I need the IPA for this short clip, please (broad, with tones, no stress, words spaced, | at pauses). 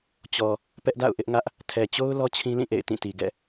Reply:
t͡ɕɔ˨ | pɛ˦ʔda̰˦˨ʊ̯ʔɪ˦ʔŋä˦ʔ | tʰɛ˨t͡ɕo˦ʊ̯ lɔ˦t͡ɕʰĩ˦lĩ˦˨ʔḛ˦˨ɪ̯ tĩ˦˨ti˨ ɡɛ̰˦˨